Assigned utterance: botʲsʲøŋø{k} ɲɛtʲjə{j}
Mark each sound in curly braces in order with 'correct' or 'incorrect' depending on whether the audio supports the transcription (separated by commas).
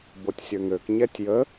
correct, incorrect